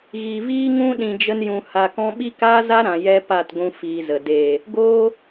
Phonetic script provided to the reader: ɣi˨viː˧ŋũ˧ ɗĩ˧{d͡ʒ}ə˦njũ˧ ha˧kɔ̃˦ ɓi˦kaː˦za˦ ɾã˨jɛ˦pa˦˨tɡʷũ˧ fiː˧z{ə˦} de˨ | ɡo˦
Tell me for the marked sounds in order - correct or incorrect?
correct, incorrect: ə˨

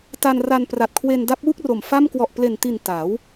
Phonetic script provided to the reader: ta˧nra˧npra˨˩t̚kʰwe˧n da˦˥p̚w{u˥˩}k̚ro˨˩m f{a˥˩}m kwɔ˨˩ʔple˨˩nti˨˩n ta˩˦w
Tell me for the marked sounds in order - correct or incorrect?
correct, correct

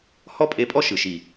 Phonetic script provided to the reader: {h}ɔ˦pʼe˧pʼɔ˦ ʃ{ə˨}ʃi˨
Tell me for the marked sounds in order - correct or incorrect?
correct, incorrect: ɯ˨

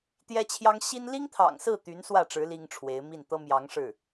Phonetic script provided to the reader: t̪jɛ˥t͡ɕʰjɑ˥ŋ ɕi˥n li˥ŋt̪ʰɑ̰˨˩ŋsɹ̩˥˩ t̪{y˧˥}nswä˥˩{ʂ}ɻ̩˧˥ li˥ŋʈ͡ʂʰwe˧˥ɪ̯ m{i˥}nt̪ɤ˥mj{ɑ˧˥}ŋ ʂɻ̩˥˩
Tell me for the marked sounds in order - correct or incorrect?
correct, incorrect: ʈ͡ʂ, incorrect: i˥˩, correct

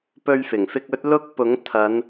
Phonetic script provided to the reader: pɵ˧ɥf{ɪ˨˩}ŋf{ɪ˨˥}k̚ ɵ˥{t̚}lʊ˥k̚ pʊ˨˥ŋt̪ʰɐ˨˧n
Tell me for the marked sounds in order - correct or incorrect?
correct, incorrect: ɪ˧, correct

